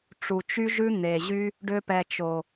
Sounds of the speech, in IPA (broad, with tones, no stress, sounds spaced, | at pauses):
ʈ͡ʂ u˨ t͡ʃ y˦ ʒ ʉ˦ n̪ e˨ ʑ y˦ | ɖ ø˧ p ɛ˨ t͡ʃ o˨